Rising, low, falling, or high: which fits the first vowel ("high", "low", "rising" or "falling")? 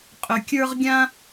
low